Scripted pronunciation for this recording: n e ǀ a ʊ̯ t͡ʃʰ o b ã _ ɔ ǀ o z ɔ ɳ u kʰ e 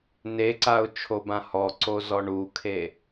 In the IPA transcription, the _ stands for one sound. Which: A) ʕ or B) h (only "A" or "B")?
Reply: B